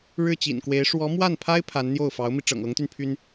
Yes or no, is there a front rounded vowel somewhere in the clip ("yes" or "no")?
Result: yes